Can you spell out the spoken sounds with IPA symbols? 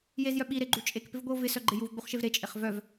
j e z j œ ɓ i ɾ e ɡ͡ǃ u t͡ʃʼ e k p ɪ v ɡʷ i o̯ v ɪ s œ ɡ͡ǃ ɪ j u v ɡ͡b u χ ʃ e v ɾ e t͡ʃʼ e χ v œ v

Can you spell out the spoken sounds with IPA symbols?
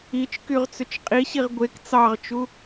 i t͡ʃ k y ʁ t͡s ʏ t͡ʃ qʼ i ɕ i ʁ ɡʷ e k t͡s ɑ ʁ t͡ʃ u

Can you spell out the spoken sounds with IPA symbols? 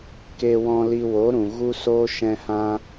k eː˧ w ɔ̃˧ l i˧ w o˨˦ ɾ ũ˨ ɣ u˦ s oː˦ ʃ ɛ̃˧ h ã˧

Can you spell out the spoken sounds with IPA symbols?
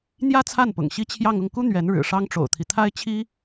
n̪ j ä˥ t͡sʰ a˥˩ n p ʊ̰˨˩ ŋ ɕ i˥ t͡ɕʰ j ɑ˥˧ ŋ ʊ˥˩ ŋ k u˥ n̪ ɥ ɛ˧˥ n ɻ ɻ̩˨˩ ʂ ɑ˥ ŋ ʈ͡ʂ o̰˨˩ ʊ̯ t̪ʰ i˦ t̪ʰ a˥ ɪ̯ t͡ɕʰ i˥

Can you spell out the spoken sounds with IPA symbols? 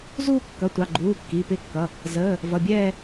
z uː˦˨ kː ʌ˩˧˩ tʷ ɑ˩˧˩ ɡ͡ǃ uː˩˧˩ kː i˩˧˩ p ɪ˦˨ kː ʌ˩˧˩ | z əː˩˧˩ | v ʌ˩˧˩ bʲ ɛː˦˨

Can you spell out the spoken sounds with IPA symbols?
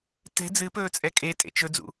t ɛ̤ d͡z ɨ p ɵː t͡sʼ ɛ kʼ e tʼ ḛ t͡ʃ ɵ d͡z ṵ

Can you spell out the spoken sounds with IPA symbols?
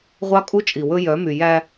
ʁʷ ɑ˦ kʼ u˦ t͡ʃʼ i˨ w ɵ˦ j œ˨˦ m y˨ j æ˦

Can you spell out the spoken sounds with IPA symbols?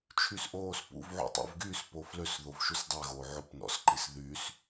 t͡ʃʰ y s ʔ oː s p ṵ v ʕ ṵ tˤ ṵ v ɡ yː s p o f l ø s ð o v ʃ u s dˤ ɛ ɣ oː ʕ o p n ɔ̰ s ǃ i s ð yː s

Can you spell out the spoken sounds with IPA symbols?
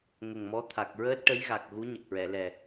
ŋ ə˨˩ ŋ m ɔ˧˥ t̪ʰ a˨˩ k̚ ɹ əː˦˥ t̚ ʈ ə˧˥ j ɣ a˨˩ k̚ ɣ u˧˥ ɲ ə˨˩ k̚ ɹ ɛ˨˩˨ l ɛ˨˩

